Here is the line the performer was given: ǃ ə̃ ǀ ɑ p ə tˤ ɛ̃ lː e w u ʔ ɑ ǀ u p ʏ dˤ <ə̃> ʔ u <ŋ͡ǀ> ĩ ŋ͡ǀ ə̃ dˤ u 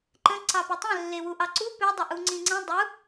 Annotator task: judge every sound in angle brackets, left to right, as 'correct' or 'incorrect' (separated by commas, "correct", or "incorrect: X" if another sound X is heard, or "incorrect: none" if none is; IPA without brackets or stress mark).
incorrect: ə, correct